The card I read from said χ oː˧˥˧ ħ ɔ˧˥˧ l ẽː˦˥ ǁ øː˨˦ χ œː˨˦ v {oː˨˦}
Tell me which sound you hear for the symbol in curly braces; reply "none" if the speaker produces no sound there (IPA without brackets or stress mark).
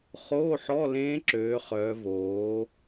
oː˨˦